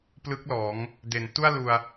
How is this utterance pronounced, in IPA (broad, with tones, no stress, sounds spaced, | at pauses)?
p l ɯ˦˥ k̚ l ɔː˩˦ ŋ | d e˩˦ n t u˥˩ a̯ l u˧ a̯